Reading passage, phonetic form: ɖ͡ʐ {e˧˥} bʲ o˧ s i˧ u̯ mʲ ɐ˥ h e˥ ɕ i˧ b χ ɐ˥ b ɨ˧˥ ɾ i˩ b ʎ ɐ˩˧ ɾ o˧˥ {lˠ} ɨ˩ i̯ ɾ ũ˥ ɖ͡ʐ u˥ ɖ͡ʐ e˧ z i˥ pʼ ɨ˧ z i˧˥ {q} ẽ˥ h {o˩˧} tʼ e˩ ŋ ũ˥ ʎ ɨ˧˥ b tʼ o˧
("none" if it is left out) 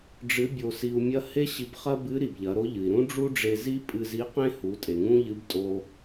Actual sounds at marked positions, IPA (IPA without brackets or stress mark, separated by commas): ɨ˧˥, ʎ, q, u˩˧